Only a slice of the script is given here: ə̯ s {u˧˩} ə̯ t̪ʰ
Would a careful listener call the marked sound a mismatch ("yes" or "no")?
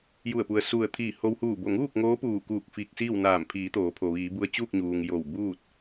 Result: no